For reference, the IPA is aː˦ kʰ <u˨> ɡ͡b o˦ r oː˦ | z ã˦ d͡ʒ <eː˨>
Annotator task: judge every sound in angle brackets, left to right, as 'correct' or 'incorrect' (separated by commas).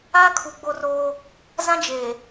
correct, correct